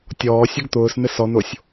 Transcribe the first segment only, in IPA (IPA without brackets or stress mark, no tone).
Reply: tʲ